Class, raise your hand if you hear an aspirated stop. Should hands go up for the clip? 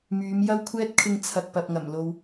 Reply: yes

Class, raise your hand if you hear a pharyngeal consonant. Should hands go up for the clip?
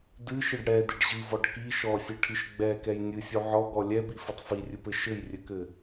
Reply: yes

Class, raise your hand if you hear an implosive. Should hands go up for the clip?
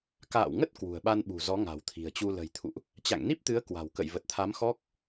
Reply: yes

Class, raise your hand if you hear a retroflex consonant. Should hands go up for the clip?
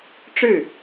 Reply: yes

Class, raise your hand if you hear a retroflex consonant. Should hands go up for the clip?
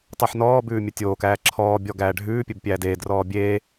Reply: yes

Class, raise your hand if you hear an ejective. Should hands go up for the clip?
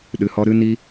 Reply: no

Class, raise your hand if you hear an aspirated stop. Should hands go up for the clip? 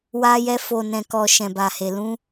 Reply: no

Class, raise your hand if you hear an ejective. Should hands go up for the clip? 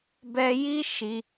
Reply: no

